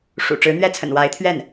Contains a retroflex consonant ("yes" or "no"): yes